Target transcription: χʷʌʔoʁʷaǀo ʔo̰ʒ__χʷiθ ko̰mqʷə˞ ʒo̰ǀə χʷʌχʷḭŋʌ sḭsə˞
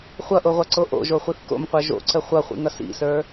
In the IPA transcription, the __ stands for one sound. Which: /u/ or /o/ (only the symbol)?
o